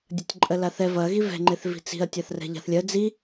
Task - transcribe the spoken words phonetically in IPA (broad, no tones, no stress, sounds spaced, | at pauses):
dʲ ɐ tʲ ǃʼ ɜ l a θ ɛ v ɐ ɣ i v ɛ̤ ŋ͡ǃ e θ v i̤ t͡s i̤ ɐ̯ tʲ a θ r ɛ̤ ʎ a̤ θ lʲ ɜ d͡z i